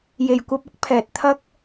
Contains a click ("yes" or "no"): no